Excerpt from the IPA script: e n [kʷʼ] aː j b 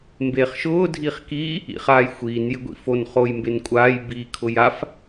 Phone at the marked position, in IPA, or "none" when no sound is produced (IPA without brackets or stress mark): kʷʼ